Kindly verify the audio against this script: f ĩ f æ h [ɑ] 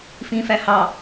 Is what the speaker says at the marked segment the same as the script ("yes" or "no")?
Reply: yes